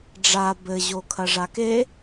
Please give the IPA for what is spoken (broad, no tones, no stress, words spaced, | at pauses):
ɖ͡ʐa bɘʑo kʰɐʐake